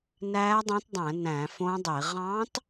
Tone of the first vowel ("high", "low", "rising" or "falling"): rising